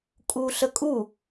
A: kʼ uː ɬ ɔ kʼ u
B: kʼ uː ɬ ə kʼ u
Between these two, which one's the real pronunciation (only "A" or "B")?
B